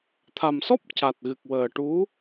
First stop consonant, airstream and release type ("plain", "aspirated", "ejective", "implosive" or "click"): aspirated